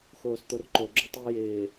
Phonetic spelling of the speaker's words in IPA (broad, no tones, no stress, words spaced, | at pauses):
xoːst̪orǃo ɡ͡ǁʊtˤi jɪː